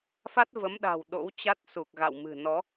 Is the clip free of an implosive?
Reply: no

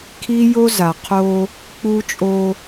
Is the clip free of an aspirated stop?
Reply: no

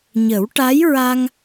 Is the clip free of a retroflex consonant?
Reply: no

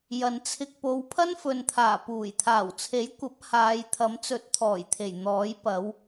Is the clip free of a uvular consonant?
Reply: yes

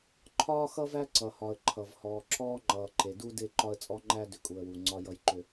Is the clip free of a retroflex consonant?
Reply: yes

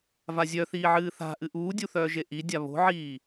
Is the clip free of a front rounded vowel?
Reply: no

